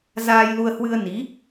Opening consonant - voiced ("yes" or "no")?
yes